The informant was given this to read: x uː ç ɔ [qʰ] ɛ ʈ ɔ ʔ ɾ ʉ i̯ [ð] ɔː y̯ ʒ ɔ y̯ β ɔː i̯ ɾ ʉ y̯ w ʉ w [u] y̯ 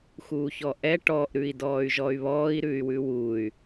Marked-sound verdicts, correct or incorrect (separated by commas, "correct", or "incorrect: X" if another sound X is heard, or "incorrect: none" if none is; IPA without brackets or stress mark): incorrect: ʔ, incorrect: d, correct